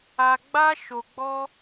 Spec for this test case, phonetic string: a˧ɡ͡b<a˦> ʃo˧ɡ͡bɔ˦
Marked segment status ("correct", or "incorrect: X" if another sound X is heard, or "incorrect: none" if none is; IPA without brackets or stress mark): correct